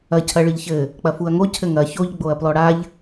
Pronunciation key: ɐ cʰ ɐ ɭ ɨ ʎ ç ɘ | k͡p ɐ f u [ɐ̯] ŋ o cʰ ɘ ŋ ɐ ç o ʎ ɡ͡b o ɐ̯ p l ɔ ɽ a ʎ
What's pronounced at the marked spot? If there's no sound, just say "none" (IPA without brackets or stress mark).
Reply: ɐ̯